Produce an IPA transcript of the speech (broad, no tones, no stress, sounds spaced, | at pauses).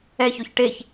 ɛ ç o ç ʈ e ç